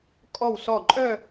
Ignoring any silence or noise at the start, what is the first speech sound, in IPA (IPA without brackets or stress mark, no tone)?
kʼ